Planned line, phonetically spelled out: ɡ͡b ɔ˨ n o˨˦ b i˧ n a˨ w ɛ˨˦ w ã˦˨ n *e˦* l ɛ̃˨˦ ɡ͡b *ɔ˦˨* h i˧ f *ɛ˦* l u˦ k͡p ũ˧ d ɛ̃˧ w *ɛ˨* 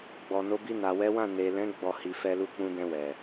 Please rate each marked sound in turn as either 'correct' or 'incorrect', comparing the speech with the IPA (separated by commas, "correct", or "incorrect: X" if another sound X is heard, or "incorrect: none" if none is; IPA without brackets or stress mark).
incorrect: e˨, correct, correct, correct